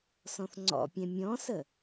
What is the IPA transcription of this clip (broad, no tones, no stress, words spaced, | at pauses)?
sɔ̃θŋ͡ǀɔ̰pʲɛ̃ mʲɔ̃sə